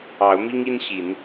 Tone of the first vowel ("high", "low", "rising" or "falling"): rising